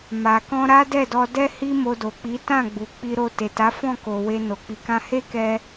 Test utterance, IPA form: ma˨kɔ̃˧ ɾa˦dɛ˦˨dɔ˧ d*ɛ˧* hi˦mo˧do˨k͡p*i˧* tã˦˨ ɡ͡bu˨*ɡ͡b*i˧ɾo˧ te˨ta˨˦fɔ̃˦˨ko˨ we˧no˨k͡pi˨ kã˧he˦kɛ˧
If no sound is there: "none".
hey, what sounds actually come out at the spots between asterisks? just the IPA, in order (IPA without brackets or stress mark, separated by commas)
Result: ɛ˦, i˨˦, k͡p